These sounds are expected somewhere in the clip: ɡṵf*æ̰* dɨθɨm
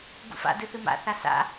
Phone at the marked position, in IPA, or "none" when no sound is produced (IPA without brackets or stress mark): a̰